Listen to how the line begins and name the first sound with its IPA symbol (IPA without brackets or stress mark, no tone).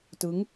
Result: t